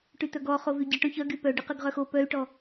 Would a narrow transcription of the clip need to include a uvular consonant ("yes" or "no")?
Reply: yes